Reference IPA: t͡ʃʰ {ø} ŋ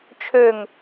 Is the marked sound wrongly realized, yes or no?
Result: no